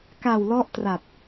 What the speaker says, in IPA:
ka˨˩wlɔ˦˥ʔ tra˨˩t̚

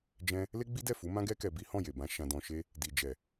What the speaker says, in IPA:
d͡ʒɛ̃˦ | le˦ɡ͡bi˦dɛ˦˨ fu˨˦mã˦ɡɛ˦ kɛ˧bi˦ hɔ̃˦˨je˨bã˧ ʃã˧dɔ̃˧ʃe˦ | di˨d͡ʒɛ˨

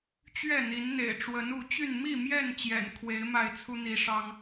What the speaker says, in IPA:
t͡ɕɥɛ˥˨n̪i˨˦nn̪ḛ˨˩ɪ̯ ʈ͡ʂwə˨˦nu˨˦t͡ɕy˥˨n mi˥˨mjɛ˥˨n t͡ɕjɛ̰˨˩nkʰwe˨˦ɪ̯ ma˥˨ɪ̯t͡sʰu˦n̪i˨˦ ʂɑ˦ŋ

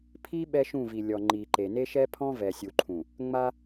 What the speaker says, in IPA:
pʰi˦ ɓɛ˦ʃũ˦˨vi˨lʲɔ˨ ŋ͡ǃi˨ǃe˨ ne˦ʃɛ˦pʰɔ̃˦ vɛ˨sʲu˨ǃʰũ˨ | ŋ͡ma˦

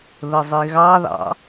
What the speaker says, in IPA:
ðəzˤiɣɑðɑ̰

